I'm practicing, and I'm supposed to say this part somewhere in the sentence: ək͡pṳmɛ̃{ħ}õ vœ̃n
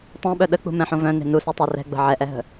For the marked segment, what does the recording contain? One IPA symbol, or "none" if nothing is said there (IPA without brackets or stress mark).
ħ